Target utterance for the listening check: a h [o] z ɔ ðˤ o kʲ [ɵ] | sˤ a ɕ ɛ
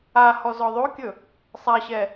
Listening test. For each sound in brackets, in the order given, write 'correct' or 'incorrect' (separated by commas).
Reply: incorrect, correct